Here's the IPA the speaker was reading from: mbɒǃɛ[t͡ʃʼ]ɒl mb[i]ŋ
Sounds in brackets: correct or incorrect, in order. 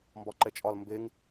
correct, incorrect: e

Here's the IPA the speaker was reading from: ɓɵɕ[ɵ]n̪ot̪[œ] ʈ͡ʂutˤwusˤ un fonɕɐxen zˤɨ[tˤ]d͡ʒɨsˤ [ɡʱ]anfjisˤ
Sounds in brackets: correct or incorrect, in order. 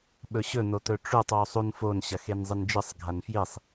correct, incorrect: ɵ, incorrect: n, correct

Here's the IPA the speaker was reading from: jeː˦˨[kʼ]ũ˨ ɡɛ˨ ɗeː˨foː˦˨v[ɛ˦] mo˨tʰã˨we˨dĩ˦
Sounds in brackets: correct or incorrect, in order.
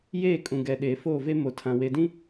correct, incorrect: e˦

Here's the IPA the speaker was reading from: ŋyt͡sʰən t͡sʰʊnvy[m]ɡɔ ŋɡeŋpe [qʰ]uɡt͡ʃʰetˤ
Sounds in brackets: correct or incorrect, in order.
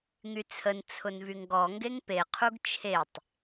incorrect: ŋ, correct

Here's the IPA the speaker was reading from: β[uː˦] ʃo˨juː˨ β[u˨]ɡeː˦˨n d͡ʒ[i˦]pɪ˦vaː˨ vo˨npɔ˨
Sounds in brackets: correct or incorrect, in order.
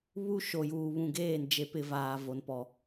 incorrect: u˦, incorrect: ũ˨, incorrect: e˦

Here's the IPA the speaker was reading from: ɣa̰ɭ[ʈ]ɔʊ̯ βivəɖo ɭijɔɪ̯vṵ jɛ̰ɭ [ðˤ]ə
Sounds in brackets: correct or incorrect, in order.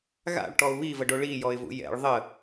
correct, correct

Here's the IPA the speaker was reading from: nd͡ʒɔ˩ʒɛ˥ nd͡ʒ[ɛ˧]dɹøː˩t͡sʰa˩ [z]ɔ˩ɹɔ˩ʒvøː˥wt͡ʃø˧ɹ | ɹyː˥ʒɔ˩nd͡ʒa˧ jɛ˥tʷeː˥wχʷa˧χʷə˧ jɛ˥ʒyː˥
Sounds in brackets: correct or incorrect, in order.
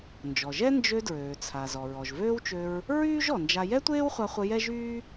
incorrect: ø˧, correct

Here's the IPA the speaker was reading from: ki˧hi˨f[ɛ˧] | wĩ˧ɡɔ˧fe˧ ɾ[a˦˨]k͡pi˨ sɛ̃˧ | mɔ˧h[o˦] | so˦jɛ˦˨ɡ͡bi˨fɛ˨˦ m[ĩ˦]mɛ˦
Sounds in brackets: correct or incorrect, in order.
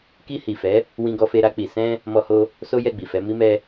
incorrect: ɛ˨˦, incorrect: a˧, correct, incorrect: i˦

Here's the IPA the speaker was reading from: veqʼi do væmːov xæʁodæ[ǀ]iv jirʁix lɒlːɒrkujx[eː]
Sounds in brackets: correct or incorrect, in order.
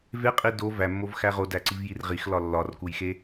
correct, incorrect: e

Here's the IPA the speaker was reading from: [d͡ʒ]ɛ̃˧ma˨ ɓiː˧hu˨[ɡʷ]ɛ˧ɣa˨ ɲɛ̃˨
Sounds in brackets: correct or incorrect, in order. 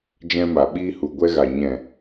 correct, correct

